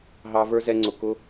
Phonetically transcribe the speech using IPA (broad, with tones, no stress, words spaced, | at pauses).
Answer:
ɦɑ˧ və˞˦zɛ˧ŋ͡ǀʊ˨ kʊ˦